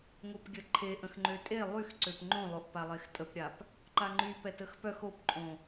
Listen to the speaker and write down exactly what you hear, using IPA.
ŋopɡʲəǃʰeʔə̃x ŋ͡ǃøtʼe lˠyxǀøp ŋ͡ǃõlˠoʔ palˠextʼəpɾʲap | ǃaŋ͡ǃypɛ təxpœx opǃʼõ

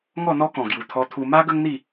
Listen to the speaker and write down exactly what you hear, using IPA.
ŋɔ˥˧n̪ɔ˦kɔ̃˨˩ ɡju˨˩t̪ʰɔ˧t̪ʰu˧ ma˦ ɡə˦ŋn̪i˥˧

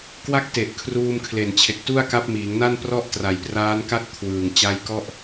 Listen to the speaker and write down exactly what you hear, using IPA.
kwa˦˥k̚te˨˩ʔ kʰruː˧mkʰle˨˩nt͡ɕʰe˨˩k̚tu˥˩a̯ ka˦˥p̚miː˩˦ŋna˥˩n prɔ˥˩ʔtra˨˩jpraː˦˥nka˥˩t̚ kʰwɯː˨˩ŋ t͡ɕa˦˥jkɔ˥˩ʔ

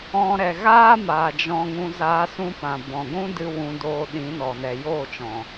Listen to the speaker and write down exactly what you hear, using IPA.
ɔ̃˧ ɾɛ˨ɣaː˦maː˨ d͡ʒɔ̃˧ŋũ˧ zaː˧sũ˧pã˨ bɔ̃˨ɡʷũ˦dɨ˧ wũ˧doː˧ ɗĩ˨˦nɔ˨nɛ˨ joː˦˨t͡ʃɔ̃˨

